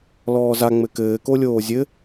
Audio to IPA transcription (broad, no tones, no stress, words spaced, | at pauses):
lɔːza ŋ͡mɘkɘː kolʲoːzʲɘ